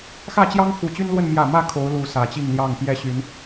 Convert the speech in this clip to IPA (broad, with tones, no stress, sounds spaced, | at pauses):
x ä˥˨ t͡ɕ j ɑ˦ ŋ x u˨˩ t͡ɕ y˦ n l w ə˥˨ n m j ä˥˨ m ä˥˨ kʰ o˨˦ ʊ̯ l u˨˦ s ä˨˩ t͡ɕ i˥˨ ŋ l j ɑ˥˨ ŋ p j ɛ˥˨ ɕ y˨˦ n